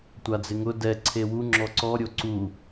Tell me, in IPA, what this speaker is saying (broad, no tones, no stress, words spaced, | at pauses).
tʷad͡zɪŋʊ dɛ ǀʰewu ŋ͡ǁɔǀɔ ɾʲoǀu